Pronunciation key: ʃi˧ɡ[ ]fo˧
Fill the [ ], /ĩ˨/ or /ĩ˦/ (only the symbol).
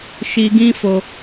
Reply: ĩ˦